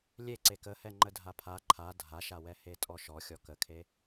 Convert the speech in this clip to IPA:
lʲ e ǀ e k ə h ɛ ŋ͡ǃ ə dʱ a pʰ a ǃʰ a dʱ a ʃ a w ɛ h e tʼ ɔ ʃ ɔ xʲ ɔ k ə kʰ e

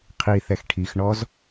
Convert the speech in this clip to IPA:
qʰ i θ ɛ x ʈʰ i x ɳ ɔ z

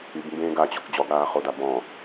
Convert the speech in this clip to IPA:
y b m b ẽː ɡ a t͡ɕ ɔ k d͡ʑ ɔ ɡ ɽ aː χ o d a b ɔ̃

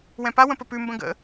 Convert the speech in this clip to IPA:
w ɛ̃ p a w ə̃ p ə p ʉ m b ə̃ ɡ ə̰

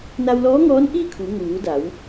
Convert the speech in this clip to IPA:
n a˧ w l ɔː˧˥ ŋ ɔː˧˥ n ʔ iː˥˨ kʰ u˩˧ ŋ uː˩˧ d a˩˧ w

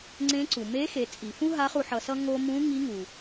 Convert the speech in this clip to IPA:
ŋ͡ǀ ẽ˧˥ ǀ u˩ m e˧˥ x e˩˧ t͡sʼ i˩ f ũ˥ ɦ a˧˥ χ u˧ ħ ʌ˧ s ʌ˥ ŋ o˥ m ũ˧˥ ŋ i˧˥ ŋ u˩

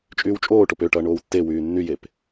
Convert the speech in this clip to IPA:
t͡ʃʼ yː w t͡ʃʼ oː ʈ o p ø ʈ ʌː ɳ oː w tː e w yː nː y j e p

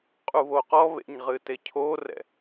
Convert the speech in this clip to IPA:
qʼ u β o q ɔ β ḛ ɲ ʁ ɨ t e cʰ o r ɛ̰

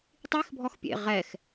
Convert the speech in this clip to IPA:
tˤ i x bʱ ɔ x pʲ ḛ ʁ ɛ x

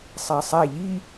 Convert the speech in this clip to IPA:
sˤ æ sˤ æ ʎ i

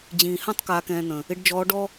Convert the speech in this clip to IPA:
d͡ʑ ĩː˨˩ h ã˥ tˤ k aː˧ k ɛ̃ː˧ n̪ ə̃˨˩ | ɪ˧˥ ɖ d͡ʒ ɔː˧˥ ɖ ɔ˥

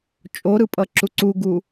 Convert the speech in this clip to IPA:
t͡ʃʼ o ɾ ɯ pʼ ʌ ǁ u ǀ u ɡ u

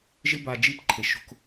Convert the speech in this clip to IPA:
ʒ ɪ˧ b a˨ d͡ʒ i˧ p ǃʰ e˨ ʃ o̤˧ k

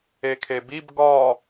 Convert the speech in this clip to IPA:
e kʰ e b i b ɡ ɒ

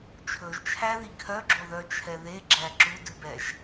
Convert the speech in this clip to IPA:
t͡ʃʰ ɵ ʒ t͡ʃʰ æ ð i kʰ œ ɡ͡ǁ o ð œ t͡ʃʰ ɛ ð e ɡ͡ǁ æ ǁ u d ʉ b ɛ ʒ

